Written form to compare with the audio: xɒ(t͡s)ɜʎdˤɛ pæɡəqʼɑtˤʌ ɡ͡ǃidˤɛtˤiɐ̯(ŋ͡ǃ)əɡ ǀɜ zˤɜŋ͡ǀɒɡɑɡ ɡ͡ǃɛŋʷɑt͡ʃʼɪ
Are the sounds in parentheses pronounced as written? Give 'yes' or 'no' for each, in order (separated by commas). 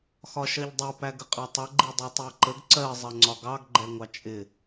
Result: no, no